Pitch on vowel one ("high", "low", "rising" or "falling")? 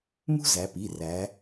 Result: high